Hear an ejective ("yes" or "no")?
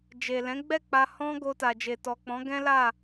no